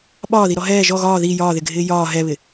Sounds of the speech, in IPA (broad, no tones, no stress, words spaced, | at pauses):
ɓɒːðiɾɔ ɦɛː ʒɔ ɣɒː ði jɒːðɪɡʱɪː jɒː ɦɛβɪ